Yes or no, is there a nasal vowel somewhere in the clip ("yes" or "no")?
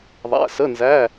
no